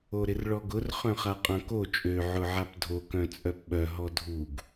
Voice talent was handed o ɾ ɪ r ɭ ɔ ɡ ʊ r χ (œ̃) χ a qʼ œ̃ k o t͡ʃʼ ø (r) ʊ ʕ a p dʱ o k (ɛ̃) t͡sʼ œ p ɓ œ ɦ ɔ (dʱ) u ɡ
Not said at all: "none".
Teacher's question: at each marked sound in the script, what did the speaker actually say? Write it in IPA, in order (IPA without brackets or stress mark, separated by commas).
œ̃, ʕ, œ̃, dʱ